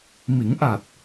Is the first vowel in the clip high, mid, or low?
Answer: high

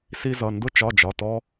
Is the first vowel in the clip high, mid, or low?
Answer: high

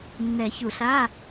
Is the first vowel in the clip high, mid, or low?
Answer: mid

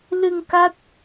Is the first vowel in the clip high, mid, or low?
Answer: high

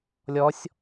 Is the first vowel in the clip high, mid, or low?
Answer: mid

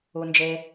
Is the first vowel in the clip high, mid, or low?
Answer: high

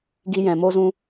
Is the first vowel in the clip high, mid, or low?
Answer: high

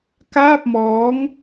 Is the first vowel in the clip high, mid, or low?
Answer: low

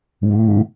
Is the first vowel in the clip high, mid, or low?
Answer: high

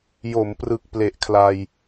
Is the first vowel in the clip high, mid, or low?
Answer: mid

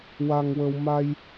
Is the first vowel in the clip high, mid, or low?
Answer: low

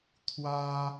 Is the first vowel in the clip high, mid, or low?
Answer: low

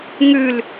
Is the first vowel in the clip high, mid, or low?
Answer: high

